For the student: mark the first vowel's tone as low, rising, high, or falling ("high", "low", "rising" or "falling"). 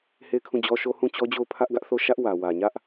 falling